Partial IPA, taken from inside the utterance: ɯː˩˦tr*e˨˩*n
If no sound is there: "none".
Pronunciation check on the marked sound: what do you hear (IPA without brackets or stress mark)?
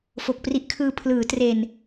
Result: e˨˩